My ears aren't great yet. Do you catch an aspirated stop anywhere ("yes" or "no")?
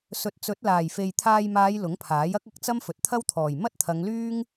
yes